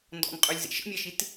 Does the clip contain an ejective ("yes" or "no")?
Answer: yes